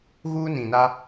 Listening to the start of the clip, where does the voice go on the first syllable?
high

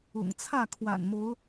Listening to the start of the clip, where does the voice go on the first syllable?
low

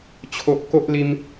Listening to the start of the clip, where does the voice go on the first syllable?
low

